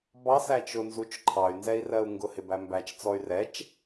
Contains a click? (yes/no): yes